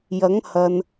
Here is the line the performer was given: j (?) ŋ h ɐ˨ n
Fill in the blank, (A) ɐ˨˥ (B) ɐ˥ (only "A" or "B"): A